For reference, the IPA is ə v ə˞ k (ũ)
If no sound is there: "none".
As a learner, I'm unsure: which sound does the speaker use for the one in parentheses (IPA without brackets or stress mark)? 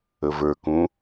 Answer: ũ